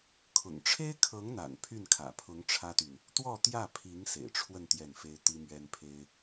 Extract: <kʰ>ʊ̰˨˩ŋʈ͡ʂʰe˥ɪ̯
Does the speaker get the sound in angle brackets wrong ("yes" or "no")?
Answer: no